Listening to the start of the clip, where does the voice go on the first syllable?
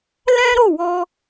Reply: high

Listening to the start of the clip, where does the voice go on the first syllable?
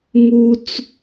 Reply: high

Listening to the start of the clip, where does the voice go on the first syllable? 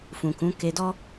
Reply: low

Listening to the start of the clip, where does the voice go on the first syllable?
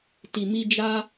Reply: low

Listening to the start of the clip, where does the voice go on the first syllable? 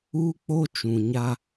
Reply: high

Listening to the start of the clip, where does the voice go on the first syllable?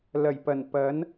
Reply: low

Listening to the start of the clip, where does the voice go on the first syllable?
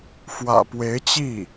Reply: low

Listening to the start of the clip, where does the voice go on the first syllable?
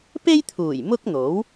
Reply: high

